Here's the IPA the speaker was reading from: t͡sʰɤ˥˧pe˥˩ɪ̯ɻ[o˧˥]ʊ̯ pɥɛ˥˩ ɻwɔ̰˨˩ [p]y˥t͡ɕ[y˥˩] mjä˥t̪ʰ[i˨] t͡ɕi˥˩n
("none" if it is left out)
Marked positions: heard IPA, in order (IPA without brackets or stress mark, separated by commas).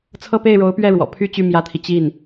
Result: o˧˥, pʰ, y˥˩, i˨